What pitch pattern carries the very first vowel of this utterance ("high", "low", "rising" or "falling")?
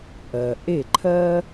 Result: low